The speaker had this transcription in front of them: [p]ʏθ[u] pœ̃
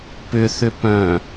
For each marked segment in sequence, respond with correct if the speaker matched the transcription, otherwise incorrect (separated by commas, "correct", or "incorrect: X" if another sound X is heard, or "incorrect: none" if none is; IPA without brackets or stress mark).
correct, incorrect: ʏ